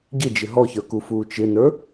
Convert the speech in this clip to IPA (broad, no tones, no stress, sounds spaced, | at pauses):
ɟ ɪ d͡ʒ ɪ ɦ ɔ ç ə˞ k u f uː t͡ʃ ɪ n ə˞